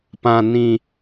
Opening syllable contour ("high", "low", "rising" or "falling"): low